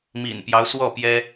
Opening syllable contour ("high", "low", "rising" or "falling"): low